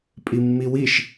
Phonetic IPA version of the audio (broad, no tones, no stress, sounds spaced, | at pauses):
pʼ i mː i w i ʃ